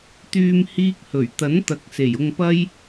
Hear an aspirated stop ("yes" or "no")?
no